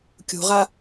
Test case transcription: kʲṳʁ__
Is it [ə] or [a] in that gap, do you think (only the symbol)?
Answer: a